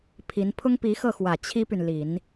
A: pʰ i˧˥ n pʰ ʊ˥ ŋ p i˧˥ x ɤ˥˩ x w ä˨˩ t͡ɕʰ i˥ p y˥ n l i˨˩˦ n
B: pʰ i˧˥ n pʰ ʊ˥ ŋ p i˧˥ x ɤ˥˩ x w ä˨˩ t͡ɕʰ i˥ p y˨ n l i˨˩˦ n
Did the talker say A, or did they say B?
B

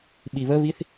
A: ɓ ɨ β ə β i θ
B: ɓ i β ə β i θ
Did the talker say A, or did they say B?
B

